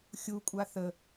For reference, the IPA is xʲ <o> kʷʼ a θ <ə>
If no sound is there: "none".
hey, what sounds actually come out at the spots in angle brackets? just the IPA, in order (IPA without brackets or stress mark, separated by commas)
u, ə